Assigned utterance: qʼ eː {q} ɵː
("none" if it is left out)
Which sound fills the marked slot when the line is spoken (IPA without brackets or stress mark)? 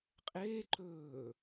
ǃ